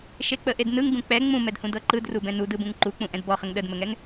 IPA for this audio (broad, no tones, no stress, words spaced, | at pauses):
ʃek͡pəʔednɯŋ ɡũk͡pɛ ŋ͡mũmɛdhũ dɤǃɯdru bɛ̃nudɯ bũŋǃuk͡pũ ʔɛ̃dbɔχəŋ ɗədməŋɛŋ